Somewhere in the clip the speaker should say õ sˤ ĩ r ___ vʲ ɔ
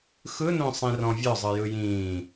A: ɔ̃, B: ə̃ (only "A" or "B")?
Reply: A